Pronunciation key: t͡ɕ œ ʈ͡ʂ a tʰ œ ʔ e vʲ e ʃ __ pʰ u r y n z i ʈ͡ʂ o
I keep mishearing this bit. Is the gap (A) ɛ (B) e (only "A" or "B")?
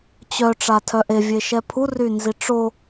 A